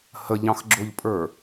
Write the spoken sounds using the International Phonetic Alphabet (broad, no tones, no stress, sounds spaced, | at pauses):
h ə ʎ ɑ̃ x ɡ͡ǁ ʊ ʎ pʼ ə˞